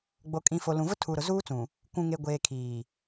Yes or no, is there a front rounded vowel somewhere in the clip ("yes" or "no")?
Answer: no